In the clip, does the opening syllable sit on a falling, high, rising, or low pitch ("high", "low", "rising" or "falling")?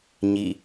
falling